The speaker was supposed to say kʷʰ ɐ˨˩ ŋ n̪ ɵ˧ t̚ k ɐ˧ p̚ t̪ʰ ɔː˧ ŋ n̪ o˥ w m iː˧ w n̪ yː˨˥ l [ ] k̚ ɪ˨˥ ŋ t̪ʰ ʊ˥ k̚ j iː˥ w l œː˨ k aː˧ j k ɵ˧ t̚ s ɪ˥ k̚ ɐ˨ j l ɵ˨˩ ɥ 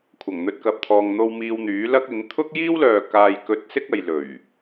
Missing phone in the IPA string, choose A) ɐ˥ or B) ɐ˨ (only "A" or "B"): A